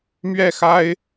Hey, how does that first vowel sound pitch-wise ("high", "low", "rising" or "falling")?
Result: falling